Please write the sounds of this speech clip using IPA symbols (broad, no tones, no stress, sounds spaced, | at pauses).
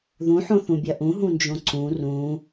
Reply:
ð ũ ħ õ θ ũ bʲ ɐ ʔ ũ ɦ ũ n d͡ʒ õ ǀ ũ r ũ